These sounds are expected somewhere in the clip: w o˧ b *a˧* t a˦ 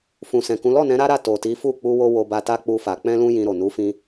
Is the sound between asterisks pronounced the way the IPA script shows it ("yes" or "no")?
yes